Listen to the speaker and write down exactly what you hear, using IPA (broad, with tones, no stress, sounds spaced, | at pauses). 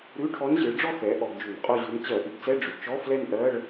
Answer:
ɾ ʉ˧˥˧ ʈʰ ɔ˧˥ n ʑ ɨ˩˥ ɭ ɖ͡ʐ ɔ˥˧ x ɛ˩˥ ʔ ɔ˧˩˧ ɡ d͡ʒ ʉ˧˩˧ n qʼ o˥˧ ʑ ʉ˧˥ n t͡ɕ ɜ˧˩˧ ʔ ɨ˩˥ ɡ t͡s ɛ˧˥˧ ɖ͡ʐ ʉ˩˥ t͡ʃ ɔ˧˥˧ f l ɛ˥˧ n ʔ ɜ˧˥˧ ɭ